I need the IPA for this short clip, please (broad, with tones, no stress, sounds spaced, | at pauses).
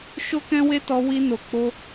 ʃ o˦ k ɛ̃˦ w e˦ t ɔ˧ w i˧ n o˨ k͡p o˧